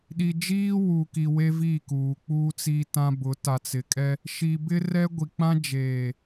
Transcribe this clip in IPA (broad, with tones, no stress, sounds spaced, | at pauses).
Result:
ɗ i˨ d͡ʒ iː˦ w u˨ k i˨ w e˦ v i˦˨ k uː˨ k͡p uː˦ t͡s i˦ t ã˦ b ʊ˨˦ t a˨ t͡s ɪ˨ kʼ ɛ˦ | ʃ i˨ b ɪ˦ r ɛ˦ ɡʷ i˨ k͡p ã˦ d͡ʒ eː˨